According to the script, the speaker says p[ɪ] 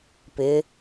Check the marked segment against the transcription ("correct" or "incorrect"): correct